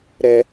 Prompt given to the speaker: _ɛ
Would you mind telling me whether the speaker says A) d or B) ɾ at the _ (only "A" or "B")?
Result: B